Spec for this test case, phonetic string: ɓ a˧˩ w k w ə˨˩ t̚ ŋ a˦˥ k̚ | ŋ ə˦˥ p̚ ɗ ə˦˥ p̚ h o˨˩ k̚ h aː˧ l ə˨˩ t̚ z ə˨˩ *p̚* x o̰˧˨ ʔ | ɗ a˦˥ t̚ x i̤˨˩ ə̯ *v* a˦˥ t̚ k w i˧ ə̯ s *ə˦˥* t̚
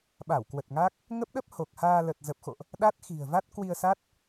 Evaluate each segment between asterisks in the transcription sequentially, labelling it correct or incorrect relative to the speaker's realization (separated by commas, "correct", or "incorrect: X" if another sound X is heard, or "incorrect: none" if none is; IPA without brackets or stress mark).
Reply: correct, correct, incorrect: a˦˥